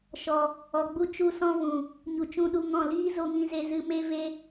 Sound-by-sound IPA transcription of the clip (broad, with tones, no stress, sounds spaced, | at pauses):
ʃ ɔ˨ | ɔ˨ ɡ͡b u˧ t͡ʃ u˧ s ɔ̃˧ v ũ˨ | ɲ u˨ t͡ʃ ũ˧ ɗ u˧ ŋ ɔ̃˦˨ l iː˦ z o˧ ŋ ĩ˧ z e˧ z ɨ˧ m e˦ v e˦